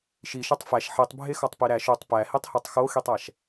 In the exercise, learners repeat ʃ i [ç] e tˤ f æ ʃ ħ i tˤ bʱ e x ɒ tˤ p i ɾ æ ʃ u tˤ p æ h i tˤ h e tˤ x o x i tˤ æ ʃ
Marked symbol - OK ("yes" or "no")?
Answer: no